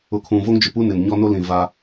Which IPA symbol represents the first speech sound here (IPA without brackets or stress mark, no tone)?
ʊ